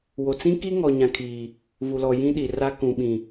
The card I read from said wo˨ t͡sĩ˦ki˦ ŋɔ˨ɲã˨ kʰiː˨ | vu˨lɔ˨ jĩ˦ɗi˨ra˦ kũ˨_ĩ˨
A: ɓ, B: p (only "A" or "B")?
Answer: A